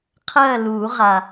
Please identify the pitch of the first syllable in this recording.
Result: falling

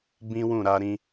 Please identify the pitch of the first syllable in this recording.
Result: high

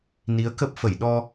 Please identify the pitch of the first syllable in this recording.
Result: rising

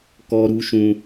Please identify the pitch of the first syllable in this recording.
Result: high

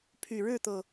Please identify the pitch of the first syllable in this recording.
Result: low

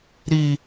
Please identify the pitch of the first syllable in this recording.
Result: high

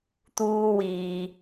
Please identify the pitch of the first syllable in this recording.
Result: high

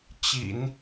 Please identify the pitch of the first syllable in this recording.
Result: low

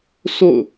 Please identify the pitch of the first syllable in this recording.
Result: falling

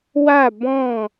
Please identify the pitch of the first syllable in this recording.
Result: falling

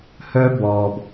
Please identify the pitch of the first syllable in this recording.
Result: high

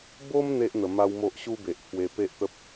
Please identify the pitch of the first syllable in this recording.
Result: high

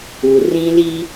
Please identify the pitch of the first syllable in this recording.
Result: low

